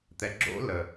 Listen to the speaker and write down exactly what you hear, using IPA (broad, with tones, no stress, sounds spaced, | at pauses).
t̪ ɛ˨ ɡ͡ǁ o̰˦˥ l ə˨